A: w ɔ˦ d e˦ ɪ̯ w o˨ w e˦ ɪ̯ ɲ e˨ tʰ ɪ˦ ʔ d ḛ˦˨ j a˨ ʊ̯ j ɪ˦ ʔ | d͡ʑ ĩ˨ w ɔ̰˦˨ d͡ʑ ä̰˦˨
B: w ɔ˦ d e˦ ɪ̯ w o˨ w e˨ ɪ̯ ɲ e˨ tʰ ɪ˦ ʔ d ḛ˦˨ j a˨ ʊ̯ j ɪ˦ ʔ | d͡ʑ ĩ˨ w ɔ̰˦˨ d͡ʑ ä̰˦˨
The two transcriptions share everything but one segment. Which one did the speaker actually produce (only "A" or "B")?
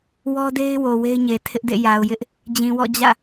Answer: A